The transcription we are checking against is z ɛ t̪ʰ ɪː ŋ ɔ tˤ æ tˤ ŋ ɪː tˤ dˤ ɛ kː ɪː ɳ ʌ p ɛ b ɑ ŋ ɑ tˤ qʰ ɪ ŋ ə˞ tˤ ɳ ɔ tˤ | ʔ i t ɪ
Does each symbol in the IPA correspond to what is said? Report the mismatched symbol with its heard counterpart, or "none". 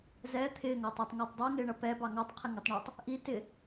kː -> ŋ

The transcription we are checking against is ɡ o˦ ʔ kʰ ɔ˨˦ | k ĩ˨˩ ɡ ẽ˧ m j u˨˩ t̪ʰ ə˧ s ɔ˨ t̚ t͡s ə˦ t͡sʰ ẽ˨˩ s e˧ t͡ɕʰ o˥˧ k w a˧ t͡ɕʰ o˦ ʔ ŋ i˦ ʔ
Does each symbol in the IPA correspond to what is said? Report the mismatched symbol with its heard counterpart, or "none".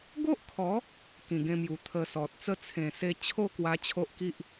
ŋ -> k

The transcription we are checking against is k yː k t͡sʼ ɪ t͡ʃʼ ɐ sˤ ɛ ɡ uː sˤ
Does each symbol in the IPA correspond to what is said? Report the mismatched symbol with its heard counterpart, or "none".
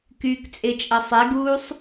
none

